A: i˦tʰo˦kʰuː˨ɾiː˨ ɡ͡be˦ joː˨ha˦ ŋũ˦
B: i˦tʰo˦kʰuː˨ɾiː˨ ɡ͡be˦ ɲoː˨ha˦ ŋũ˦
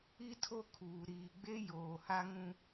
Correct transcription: A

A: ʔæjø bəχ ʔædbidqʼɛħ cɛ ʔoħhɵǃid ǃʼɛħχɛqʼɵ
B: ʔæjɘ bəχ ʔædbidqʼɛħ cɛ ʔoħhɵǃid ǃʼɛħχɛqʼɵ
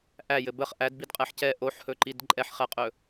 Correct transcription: B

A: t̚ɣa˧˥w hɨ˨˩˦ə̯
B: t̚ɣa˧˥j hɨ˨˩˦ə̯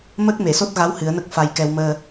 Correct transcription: A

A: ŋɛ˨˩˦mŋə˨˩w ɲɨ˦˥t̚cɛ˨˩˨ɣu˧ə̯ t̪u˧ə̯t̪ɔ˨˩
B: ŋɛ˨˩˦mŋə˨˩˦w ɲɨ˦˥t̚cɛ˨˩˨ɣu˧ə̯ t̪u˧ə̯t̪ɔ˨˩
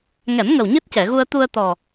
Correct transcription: A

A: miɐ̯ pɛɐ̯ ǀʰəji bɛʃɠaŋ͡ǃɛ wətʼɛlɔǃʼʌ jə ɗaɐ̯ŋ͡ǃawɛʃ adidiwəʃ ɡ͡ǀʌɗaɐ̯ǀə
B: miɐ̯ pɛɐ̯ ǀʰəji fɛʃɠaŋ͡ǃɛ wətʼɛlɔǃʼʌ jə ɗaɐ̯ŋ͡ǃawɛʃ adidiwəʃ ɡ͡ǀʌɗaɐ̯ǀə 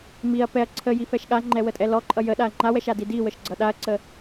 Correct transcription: B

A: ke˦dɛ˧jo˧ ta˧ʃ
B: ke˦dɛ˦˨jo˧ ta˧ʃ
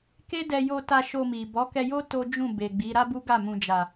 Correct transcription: A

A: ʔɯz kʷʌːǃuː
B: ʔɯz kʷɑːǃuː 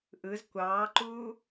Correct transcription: B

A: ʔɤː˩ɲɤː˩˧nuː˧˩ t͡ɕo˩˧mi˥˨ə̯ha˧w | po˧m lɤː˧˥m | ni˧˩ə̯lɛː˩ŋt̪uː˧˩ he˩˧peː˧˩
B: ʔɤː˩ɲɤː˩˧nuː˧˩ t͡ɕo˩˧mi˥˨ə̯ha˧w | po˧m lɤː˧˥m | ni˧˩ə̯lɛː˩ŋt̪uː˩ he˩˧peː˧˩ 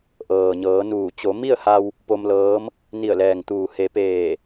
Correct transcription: B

